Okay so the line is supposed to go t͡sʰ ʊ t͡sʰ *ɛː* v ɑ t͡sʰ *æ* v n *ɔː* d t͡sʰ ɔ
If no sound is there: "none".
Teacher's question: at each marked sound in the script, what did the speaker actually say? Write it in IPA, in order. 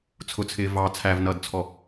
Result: ɪː, æ, ʌː

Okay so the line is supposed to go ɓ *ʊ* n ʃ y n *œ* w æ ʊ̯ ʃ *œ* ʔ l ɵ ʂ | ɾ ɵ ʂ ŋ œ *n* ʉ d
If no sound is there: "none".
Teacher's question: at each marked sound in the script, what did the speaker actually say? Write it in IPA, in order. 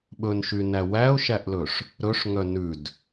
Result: ɵ, æ, æ, n

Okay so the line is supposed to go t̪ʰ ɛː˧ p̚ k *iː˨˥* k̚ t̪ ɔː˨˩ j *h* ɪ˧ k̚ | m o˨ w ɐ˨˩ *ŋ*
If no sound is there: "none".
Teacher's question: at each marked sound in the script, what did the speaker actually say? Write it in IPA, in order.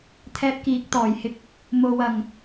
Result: iː˨˥, h, ŋ

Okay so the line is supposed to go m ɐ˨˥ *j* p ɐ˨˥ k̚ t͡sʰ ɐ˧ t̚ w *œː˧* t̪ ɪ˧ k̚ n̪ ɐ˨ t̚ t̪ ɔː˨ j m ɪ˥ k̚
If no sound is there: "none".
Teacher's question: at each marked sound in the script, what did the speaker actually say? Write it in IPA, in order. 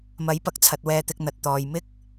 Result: j, ɛː˧

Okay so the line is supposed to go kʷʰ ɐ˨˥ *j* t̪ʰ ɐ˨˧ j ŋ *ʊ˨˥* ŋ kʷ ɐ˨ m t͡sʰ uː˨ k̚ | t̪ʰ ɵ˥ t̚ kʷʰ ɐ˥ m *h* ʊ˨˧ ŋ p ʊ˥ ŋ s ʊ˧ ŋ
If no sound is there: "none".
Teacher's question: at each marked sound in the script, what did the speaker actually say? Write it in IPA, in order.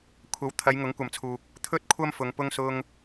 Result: w, ʊ˨˥, f

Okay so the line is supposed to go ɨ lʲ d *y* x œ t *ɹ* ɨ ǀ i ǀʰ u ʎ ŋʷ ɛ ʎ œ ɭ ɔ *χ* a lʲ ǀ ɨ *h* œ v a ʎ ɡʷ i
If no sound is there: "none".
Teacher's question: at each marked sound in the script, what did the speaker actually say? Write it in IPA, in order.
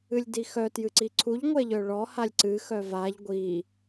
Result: i, j, h, x

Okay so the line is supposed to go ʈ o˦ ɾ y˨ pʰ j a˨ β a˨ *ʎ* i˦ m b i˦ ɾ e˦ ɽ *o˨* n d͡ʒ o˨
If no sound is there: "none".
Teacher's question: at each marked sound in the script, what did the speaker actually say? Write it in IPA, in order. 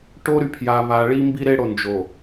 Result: ɭ, o˨

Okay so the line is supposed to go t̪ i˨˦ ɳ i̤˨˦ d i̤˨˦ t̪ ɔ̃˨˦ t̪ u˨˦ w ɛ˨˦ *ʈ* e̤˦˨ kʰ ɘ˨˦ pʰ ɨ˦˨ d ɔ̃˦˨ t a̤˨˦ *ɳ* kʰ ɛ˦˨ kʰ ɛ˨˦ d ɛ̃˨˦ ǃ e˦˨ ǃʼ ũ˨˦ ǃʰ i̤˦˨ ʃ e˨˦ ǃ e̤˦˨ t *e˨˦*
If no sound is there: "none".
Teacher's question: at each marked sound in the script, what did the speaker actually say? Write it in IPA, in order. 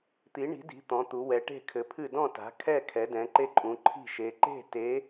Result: ʈ, none, e˨˦

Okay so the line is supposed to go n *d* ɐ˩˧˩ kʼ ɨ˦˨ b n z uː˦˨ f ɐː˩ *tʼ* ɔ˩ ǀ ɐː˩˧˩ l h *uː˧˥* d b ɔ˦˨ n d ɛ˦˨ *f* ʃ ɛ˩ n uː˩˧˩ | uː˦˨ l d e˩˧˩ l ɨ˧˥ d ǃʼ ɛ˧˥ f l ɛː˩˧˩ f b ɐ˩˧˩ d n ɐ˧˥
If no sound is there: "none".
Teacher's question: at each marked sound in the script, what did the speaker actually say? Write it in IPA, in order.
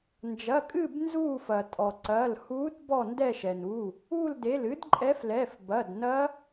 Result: d͡ʒ, tʼ, uː˧˥, none

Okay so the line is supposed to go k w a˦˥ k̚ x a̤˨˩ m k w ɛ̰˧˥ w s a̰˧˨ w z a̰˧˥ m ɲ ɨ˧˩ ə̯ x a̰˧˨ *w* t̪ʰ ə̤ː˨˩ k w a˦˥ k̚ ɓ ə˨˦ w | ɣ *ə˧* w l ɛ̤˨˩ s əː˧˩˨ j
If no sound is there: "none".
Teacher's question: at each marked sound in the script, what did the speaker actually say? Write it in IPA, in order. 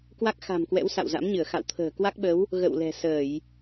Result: w, ə̰˧˨

